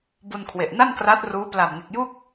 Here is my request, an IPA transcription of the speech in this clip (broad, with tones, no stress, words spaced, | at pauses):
bu˧nkʰwe˨˩ʔna˥˩n kra˦˥t̚ruː˦˥ pla˨˩mŋe˨˩k̚ju˥˩k̚